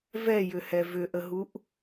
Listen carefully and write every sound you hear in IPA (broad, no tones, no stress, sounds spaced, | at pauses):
v ɛ j ʏ h ɛ v ʏ ʔ ə ɦ u ʔ